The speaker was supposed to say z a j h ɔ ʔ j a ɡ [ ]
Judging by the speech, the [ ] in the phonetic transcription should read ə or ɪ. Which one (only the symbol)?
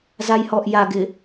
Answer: ɪ